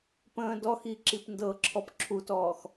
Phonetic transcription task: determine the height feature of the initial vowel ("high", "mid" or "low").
mid